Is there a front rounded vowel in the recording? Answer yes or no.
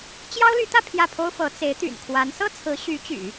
yes